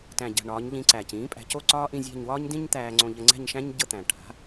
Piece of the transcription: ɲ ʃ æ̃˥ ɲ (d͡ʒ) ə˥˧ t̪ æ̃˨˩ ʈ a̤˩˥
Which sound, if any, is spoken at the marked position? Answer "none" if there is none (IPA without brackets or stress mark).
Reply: ɟ